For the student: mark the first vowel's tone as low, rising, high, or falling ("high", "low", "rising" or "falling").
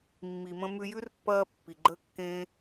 low